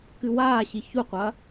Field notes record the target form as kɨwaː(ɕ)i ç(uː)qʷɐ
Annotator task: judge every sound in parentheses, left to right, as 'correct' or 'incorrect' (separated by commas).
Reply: correct, incorrect